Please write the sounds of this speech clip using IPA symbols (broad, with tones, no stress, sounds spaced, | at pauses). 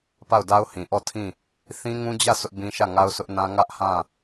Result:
p a˦˨ ʊ̯ d a˦ ʊ̯ h ĩ˨ ʔ ɔ˦˨ tʰ ĩ˦˨ | θ ĩ˦ ŋ ũ˦ d͡ʑ ä˦˨ s ʊ˦ ʔ b ĩ˦ ʃ ä˦˨ ŋ a˦ ʊ̯ s ʊ˦ ʔ n ã˦ ŋ ä˦ ʔ h ã˦˨